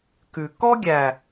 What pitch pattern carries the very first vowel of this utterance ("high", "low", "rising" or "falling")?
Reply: low